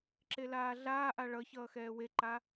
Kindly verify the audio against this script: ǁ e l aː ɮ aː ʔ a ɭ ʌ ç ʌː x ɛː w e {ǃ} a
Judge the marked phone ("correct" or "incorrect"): correct